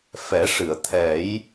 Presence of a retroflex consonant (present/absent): present